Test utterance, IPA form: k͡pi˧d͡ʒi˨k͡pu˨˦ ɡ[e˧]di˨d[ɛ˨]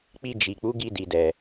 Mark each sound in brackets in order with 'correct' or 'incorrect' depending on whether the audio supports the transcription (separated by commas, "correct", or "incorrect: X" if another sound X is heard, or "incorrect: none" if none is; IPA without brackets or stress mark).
incorrect: i˧, correct